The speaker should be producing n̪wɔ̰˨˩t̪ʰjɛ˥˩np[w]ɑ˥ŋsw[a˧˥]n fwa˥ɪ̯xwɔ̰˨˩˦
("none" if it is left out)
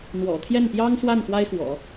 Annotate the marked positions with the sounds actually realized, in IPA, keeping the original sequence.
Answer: j, a˥˩

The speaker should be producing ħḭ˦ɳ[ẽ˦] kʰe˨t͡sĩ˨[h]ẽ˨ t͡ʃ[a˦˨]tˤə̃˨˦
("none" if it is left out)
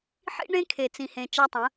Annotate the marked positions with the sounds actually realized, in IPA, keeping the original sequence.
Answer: ẽ˦, h, a˦

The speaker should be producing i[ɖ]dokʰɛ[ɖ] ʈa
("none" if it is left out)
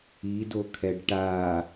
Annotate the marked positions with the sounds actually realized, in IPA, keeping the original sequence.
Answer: none, ɖ

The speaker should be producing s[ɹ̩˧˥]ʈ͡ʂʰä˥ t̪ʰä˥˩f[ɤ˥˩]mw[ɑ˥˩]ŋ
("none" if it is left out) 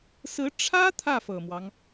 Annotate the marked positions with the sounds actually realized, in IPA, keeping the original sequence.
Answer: ɹ̩˧˥, ɤ˨˩, ɑ˦

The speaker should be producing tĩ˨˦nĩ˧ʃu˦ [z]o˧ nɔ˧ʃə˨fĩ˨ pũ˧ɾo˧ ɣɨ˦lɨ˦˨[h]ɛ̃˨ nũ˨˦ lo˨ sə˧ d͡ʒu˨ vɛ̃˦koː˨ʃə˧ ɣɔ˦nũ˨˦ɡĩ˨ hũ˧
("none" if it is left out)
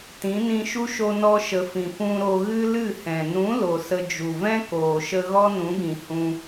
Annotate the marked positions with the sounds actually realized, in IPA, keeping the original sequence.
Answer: ʃ, h

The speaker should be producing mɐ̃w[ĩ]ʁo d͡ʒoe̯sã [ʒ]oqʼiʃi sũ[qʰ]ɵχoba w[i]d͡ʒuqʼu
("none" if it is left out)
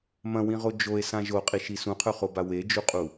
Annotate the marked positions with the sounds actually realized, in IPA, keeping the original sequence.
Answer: ĩ, ʒ, qʰ, e

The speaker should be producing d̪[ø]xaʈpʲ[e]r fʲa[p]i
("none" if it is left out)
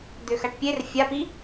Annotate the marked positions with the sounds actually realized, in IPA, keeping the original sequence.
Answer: ø, e, p

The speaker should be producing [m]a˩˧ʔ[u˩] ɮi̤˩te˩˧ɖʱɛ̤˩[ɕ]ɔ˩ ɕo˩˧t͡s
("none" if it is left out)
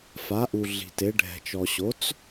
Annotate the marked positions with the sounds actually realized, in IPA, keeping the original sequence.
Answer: f, u˩, t͡ʃ

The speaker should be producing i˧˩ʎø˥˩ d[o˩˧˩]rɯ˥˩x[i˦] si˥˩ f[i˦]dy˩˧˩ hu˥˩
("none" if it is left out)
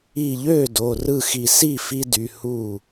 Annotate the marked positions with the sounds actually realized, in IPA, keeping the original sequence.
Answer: o˩˧˩, i˧˩, i˦

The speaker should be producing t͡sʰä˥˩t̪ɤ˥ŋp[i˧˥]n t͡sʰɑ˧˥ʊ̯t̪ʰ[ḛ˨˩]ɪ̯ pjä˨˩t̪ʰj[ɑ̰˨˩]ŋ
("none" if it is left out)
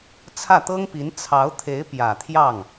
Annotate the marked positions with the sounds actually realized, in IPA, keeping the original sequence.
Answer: i˧˥, e˧˥, ɑ˥˩

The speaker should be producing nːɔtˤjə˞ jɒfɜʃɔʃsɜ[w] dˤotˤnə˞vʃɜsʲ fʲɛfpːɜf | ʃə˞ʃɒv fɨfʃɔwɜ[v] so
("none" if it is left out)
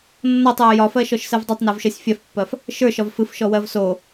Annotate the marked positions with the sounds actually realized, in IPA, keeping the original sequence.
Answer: v, v

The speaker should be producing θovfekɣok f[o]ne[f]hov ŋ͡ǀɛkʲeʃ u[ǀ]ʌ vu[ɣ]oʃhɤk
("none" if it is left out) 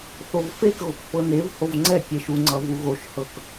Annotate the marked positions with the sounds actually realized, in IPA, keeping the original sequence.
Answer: ɤ, v, ŋ͡ǀ, ɣ

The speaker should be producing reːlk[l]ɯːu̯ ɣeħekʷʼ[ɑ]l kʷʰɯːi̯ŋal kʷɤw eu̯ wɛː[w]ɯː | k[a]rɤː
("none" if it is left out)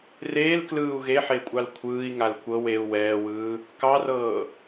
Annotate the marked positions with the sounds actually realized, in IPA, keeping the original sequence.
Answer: l, ɑ, w, ɑ

